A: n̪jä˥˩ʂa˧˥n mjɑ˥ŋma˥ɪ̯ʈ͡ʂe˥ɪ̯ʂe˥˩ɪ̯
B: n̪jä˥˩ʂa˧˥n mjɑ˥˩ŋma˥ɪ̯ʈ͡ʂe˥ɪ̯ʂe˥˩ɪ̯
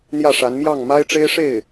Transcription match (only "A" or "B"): B